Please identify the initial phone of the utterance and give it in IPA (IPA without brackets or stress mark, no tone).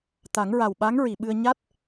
t̪